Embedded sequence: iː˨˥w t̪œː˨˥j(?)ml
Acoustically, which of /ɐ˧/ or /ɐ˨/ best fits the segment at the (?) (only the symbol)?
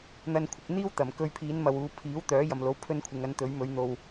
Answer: ɐ˨